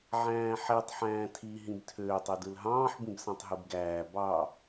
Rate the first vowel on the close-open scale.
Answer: open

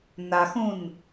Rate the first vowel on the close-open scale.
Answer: open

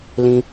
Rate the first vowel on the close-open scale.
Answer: close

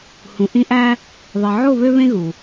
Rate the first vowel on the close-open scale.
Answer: close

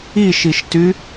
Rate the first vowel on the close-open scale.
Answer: close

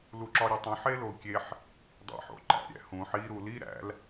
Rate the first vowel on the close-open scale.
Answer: close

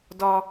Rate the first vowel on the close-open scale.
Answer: open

